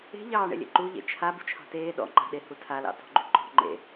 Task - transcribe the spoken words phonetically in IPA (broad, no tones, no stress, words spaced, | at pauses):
e̤ʎɑːɳḛ lʲḛǃuʎḛ t͡ʃʰa bṳt͡ʃʰɑ̤teː ɗɔ̰ŋ͡ǃa̤ɗehu tʰalɑ̰ tɔ̤ɡ͡ǃuǃɔ̤ ŋ͡ǃḛ